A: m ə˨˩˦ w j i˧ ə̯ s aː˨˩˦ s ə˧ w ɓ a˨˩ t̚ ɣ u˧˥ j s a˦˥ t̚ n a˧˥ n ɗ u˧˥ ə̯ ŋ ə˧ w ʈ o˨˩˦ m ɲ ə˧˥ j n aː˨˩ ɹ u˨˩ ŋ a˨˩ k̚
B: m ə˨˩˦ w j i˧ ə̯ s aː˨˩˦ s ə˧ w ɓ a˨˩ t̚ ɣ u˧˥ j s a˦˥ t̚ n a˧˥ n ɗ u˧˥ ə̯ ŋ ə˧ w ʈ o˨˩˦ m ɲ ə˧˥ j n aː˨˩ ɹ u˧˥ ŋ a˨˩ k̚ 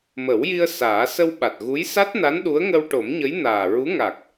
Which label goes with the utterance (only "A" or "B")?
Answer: B